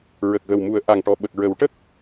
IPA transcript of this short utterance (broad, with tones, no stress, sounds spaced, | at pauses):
ɹ ə˨˩ k̚ ɣ ə˨˩ w m u˨˩˦ ə̯ ʔ a˨˩ ŋ ʈ ɔ˨˩ ɓ ə˨˩ k̚ ɹ ə˨˩˦ w ʈ ə˦˥ k̚